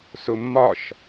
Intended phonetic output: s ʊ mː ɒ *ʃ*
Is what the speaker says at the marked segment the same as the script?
yes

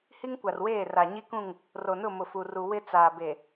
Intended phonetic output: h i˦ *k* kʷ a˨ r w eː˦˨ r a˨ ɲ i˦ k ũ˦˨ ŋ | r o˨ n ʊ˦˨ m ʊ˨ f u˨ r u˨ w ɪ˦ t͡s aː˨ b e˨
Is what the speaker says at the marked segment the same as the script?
no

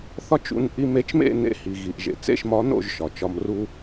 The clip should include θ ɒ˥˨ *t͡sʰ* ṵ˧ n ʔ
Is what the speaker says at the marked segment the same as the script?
no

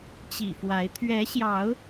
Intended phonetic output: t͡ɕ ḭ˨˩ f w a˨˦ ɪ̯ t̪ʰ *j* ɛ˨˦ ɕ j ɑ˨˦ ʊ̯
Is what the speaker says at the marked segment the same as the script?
no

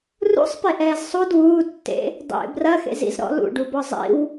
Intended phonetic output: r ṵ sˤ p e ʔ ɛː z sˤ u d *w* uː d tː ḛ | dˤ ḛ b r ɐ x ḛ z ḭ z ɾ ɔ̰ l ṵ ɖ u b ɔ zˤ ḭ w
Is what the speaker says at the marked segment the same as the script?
yes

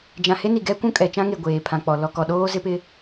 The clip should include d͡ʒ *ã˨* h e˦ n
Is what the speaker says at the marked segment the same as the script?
yes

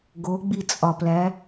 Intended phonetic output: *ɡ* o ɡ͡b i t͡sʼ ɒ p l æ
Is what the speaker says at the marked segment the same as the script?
yes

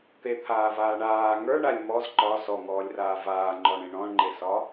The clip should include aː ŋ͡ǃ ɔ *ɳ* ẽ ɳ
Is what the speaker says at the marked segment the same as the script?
yes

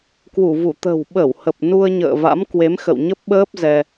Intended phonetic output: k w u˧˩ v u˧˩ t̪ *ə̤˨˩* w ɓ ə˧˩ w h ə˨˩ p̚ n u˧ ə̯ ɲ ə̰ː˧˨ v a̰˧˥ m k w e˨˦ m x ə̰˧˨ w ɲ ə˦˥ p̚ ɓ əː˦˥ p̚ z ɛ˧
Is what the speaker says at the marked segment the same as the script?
yes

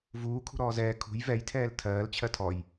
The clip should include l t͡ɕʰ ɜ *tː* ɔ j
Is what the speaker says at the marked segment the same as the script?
no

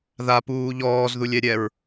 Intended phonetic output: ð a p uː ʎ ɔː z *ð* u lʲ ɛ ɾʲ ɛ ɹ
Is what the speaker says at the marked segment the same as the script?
yes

